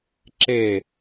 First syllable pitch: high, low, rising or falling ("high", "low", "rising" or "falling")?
falling